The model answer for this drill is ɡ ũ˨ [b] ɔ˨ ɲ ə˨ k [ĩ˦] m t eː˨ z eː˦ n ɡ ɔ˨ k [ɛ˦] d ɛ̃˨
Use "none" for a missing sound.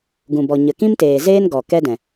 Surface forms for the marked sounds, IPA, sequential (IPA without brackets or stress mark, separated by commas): b, ĩ˦, ɛ˦